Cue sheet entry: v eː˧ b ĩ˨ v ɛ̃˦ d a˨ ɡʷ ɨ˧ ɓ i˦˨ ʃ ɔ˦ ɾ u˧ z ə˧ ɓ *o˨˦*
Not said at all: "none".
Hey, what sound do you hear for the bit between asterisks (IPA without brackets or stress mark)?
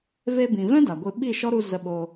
o˧